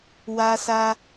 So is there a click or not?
no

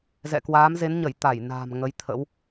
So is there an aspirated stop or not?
yes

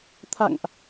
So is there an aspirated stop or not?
yes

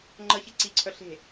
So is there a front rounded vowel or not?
yes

